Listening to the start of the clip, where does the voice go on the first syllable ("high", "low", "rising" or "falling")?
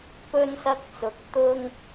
high